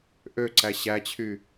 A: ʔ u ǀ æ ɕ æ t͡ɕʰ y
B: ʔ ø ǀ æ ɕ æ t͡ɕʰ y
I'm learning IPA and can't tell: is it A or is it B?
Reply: B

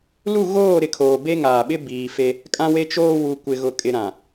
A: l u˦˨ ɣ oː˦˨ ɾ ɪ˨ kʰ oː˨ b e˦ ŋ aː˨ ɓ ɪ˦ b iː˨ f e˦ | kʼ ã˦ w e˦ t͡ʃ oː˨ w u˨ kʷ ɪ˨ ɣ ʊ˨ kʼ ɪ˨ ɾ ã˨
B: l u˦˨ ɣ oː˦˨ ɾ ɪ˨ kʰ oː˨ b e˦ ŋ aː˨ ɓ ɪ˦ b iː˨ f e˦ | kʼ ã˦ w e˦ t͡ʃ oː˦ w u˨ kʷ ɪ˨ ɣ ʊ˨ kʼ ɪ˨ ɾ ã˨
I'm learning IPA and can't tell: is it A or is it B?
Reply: B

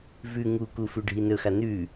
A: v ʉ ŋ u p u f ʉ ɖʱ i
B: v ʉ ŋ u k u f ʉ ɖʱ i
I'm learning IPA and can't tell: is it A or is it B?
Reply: B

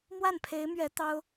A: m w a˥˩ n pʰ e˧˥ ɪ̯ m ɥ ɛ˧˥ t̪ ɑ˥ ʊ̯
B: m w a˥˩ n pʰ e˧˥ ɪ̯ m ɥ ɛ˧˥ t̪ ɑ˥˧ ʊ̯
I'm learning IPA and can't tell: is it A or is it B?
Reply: A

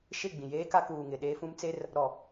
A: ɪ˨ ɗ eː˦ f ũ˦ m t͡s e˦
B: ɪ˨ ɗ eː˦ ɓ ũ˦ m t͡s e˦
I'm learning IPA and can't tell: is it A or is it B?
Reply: A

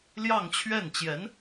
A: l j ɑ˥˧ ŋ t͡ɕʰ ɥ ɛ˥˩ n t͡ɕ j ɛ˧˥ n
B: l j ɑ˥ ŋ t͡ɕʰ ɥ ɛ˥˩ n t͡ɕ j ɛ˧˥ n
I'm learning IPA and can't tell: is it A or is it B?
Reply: A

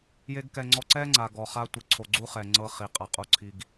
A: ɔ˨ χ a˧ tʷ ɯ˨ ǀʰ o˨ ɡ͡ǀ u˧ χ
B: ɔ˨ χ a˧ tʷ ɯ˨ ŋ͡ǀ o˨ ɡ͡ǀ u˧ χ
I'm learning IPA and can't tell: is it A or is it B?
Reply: A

